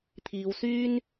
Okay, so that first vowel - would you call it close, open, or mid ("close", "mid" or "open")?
close